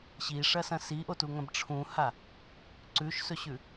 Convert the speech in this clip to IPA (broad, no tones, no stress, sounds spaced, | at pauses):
ɕ i ʂ ɐ s ɐ̃ s i ʔ o t u ŋ ɐ̃ b ʈ͡ʂʰ ũ h a | ǀ ʉ ʃ s ɵ ɕ ʉ